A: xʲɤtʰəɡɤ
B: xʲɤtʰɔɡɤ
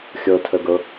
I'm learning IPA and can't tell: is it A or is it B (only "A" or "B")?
A